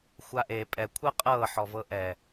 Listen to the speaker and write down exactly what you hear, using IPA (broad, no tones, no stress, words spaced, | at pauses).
xʷaʔe pʼɛkʷʰɤ qʼɤ ħɔvɤʔɛ